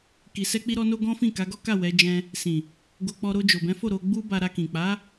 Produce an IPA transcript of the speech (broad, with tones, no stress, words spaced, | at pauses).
ki˧sɛ˦k͡pi˦ɾɔ˦ no˦ɡɔ̃˦fĩ˦˨ ka˨˦ɡɔ˦ka˦˨ wɛ˨˦ d͡ʒɛ̃˧ | sĩ˨ | ɡo˧k͡pɔ˧ ɾo˧ d͡ʒo˨bɛ̃˨˦fo˦˨ ɾo˧ɡ͡bu˦ba˧ ɾa˧kĩ˨k͡pa˨˦